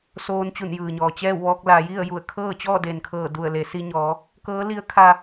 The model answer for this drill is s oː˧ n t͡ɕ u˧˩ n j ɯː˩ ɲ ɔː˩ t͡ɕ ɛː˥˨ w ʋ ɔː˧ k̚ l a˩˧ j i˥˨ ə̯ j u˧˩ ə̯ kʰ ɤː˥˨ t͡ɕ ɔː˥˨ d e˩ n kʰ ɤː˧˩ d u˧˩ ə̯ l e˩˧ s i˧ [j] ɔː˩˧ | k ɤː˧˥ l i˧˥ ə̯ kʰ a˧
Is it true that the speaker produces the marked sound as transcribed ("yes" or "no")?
no